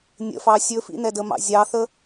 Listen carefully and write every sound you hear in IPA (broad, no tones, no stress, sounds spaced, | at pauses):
nʲ ə̰ f ɑ sʲ ɵ f ḭ n ɛ d ə m ɑ̰ zʲ ɑ θ ə